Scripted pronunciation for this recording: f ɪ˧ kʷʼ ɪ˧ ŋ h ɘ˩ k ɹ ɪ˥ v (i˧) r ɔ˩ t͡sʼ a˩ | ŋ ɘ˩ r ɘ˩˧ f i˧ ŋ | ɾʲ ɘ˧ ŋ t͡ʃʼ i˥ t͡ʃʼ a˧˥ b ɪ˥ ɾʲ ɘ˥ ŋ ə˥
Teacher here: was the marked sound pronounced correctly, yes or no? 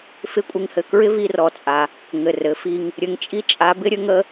yes